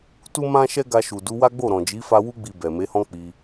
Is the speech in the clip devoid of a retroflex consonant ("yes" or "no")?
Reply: yes